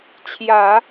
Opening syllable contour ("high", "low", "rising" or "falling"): low